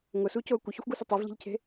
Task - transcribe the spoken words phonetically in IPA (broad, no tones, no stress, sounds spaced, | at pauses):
ŋ ʊ s u c o ə̯ kʷ ɪ ç ʊ xʷ ɡ u s ʊ tˤ e v ʎ i̤ ʎ cʰ e̤